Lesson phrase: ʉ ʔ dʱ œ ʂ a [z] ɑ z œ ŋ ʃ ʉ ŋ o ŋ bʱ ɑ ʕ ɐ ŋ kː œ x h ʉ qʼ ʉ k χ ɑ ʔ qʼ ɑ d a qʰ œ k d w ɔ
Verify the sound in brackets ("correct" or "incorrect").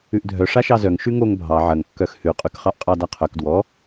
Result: incorrect